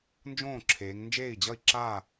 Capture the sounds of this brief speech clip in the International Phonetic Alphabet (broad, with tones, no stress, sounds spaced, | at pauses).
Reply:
n d͡ʒ õː˥˩ ǁʰ eː˩˧ ŋ n d͡ʒ eː˥˩ i̯ d͡ʑ ʌ˥˩ i̯ ǁ a˥˩